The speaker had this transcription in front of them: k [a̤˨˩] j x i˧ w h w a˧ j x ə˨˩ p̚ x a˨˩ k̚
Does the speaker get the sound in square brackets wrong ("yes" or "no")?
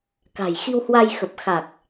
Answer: no